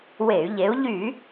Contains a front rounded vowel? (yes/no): yes